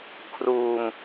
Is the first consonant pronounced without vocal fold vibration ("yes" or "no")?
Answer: yes